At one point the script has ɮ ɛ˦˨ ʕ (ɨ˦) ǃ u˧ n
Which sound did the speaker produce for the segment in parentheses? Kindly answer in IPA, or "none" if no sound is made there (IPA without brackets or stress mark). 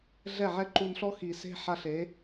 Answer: ɛ˦